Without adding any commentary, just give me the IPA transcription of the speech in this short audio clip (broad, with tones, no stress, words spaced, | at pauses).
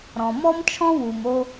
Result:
ɾɔ̃˩mɔ˥mt͡ʃʰɔ̃˥ wu˩mo˧